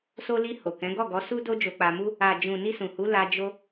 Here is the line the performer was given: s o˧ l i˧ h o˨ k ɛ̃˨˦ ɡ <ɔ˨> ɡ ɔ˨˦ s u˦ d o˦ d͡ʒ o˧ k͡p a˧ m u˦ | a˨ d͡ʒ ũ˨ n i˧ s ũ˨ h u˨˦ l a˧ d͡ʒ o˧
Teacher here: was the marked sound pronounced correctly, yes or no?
no